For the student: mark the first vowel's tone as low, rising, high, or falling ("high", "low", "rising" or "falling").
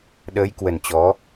rising